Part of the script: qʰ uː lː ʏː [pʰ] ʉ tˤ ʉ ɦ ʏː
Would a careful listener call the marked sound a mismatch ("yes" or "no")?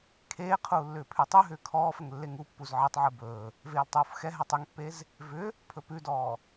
no